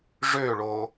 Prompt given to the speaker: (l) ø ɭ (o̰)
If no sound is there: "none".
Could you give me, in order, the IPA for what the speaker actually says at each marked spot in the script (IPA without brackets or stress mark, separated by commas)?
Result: ʐ, o